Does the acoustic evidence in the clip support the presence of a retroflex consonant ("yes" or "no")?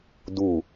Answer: no